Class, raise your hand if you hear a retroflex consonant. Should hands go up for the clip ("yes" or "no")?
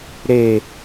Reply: no